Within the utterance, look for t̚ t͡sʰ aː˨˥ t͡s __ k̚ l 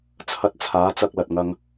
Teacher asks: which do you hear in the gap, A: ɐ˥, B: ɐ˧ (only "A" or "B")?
B